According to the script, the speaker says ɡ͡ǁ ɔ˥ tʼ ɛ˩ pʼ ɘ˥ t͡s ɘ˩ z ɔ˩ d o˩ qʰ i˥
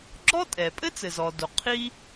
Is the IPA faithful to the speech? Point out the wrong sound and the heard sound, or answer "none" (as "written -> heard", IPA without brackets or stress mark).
none